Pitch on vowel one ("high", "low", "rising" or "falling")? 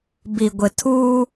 low